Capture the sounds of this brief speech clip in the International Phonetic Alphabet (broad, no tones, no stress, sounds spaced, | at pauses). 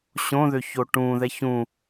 ɕ õ ð ø ç o ʈ ũ ð ɛ ç ũ